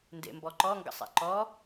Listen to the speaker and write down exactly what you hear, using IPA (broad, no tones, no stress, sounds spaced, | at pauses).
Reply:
n d ḛ m b ɔ ǃ ɔ ŋ ɡ ə̰ sˤ ḛ ǃ ɔ